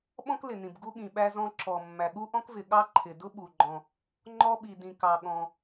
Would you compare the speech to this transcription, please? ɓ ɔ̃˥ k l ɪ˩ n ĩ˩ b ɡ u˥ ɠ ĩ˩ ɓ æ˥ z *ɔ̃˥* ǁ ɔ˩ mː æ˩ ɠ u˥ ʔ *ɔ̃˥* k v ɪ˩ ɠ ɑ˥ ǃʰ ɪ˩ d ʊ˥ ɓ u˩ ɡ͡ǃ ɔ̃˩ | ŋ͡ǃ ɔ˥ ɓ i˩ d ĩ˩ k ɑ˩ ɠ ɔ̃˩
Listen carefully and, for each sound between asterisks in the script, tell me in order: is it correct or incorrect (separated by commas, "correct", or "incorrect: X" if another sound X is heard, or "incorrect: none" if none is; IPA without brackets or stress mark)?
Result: correct, correct